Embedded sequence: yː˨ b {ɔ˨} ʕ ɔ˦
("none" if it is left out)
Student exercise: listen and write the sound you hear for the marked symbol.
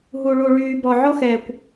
ɔ˨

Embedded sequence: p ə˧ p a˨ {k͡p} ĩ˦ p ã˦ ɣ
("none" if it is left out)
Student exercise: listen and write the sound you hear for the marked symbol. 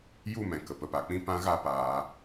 k͡p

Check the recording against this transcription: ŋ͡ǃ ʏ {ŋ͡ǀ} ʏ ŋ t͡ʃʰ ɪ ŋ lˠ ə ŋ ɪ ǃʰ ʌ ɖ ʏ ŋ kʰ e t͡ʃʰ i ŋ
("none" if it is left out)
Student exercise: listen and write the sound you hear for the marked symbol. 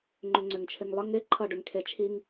ŋ͡ǀ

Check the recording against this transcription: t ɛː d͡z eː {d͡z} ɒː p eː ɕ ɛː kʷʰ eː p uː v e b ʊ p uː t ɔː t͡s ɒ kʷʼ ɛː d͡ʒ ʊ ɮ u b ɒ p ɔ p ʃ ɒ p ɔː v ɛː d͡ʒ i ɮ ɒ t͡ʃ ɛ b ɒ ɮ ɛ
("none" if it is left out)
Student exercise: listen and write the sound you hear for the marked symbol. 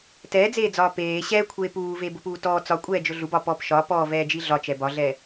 d͡z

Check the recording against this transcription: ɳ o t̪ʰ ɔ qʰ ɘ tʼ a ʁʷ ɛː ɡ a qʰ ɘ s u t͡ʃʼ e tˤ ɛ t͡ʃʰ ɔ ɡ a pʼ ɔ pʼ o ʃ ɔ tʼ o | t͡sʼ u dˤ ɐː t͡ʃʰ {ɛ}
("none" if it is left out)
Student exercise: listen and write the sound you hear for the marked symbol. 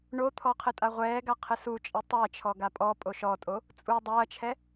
ɛ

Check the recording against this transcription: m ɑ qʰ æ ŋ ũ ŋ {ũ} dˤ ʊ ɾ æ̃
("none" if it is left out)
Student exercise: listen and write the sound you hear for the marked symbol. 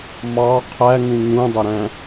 ũ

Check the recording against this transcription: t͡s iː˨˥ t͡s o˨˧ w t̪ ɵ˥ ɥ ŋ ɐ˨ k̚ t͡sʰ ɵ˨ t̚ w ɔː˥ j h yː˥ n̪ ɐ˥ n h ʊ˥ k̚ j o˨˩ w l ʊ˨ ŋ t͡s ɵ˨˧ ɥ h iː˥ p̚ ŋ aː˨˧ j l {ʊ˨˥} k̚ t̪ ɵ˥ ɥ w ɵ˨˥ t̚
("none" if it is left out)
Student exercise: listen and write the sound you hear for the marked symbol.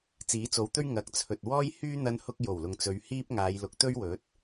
ʊ˨˥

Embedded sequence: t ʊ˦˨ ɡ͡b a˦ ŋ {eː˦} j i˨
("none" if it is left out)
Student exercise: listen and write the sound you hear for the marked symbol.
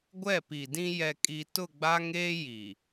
eː˦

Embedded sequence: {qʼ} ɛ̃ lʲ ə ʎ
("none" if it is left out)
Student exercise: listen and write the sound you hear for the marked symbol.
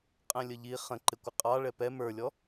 qʼ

